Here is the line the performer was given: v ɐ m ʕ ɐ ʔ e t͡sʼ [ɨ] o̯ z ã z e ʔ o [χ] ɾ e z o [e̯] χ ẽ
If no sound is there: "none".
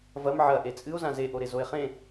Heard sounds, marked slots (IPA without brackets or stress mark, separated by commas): ɨ, none, e̯